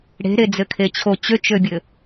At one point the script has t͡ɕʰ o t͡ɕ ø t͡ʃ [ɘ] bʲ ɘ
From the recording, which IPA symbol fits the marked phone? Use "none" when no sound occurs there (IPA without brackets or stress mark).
ø